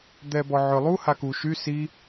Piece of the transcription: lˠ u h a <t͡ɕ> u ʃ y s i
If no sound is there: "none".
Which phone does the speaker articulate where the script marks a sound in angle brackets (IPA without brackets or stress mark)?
k